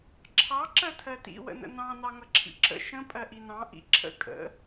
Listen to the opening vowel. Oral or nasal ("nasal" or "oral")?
oral